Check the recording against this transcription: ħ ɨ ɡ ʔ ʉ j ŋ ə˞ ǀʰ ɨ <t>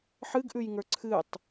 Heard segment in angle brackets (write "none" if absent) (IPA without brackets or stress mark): tˤ